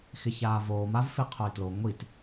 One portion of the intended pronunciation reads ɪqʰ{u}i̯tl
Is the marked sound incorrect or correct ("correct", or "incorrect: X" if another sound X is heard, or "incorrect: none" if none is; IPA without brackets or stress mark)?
incorrect: o